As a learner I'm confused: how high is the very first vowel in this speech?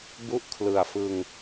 high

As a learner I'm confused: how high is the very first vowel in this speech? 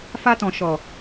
low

